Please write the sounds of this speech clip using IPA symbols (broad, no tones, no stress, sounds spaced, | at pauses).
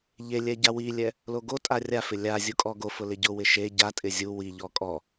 ʎ e lʲ ɛ ɟ a w i lʲ ɛ | l o ɡ o tʼ a rʲ a f ɪ lʲ a zʲ u kʼ ɔ ɡ o f ʊ l ɪ ɟ ʊ w ɪ ʃ e ɟ a tʼ ɪ zʲ u w i ʎ ɔ kʼ ɔ